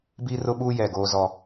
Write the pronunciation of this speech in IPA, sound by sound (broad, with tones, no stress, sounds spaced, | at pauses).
b iː˦ r ʊ˦ ɓ uː˦ j ɛ˦˨ ɡ oː˦ z ɔ˦